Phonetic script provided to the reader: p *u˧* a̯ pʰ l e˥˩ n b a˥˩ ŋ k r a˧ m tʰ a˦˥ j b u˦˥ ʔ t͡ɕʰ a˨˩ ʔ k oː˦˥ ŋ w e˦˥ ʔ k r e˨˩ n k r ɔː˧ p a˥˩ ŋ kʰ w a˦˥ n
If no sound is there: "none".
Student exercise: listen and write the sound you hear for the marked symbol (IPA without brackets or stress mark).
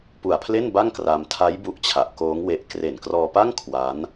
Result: u˨˩